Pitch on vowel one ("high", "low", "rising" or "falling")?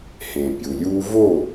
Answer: low